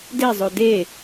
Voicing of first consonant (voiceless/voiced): voiced